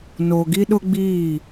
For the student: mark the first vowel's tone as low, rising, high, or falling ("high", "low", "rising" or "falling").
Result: low